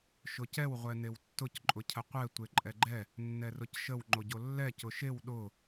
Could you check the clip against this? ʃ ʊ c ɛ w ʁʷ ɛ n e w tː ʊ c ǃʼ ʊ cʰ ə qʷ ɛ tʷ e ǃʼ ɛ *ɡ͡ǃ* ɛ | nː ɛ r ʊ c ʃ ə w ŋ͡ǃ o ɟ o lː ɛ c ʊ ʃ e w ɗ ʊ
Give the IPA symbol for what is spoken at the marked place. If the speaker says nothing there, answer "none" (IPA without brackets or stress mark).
ɡ͡ǃ